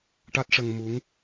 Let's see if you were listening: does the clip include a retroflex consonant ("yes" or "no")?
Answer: yes